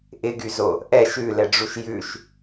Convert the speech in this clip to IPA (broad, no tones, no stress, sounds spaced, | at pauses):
ʔ ɪ ɡ y z o | ʔ ɛ ʃ ʉ l ɛ ɖ͡ʐ u ʃ j ʉ ʃ